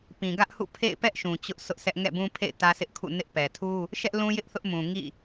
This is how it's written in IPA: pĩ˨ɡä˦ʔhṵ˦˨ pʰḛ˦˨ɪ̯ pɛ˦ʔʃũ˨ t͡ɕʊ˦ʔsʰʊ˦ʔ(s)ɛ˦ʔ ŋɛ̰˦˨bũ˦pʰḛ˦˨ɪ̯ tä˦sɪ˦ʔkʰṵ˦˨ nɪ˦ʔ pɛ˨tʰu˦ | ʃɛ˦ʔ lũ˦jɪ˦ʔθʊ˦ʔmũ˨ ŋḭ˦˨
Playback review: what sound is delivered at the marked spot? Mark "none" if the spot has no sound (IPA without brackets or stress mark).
s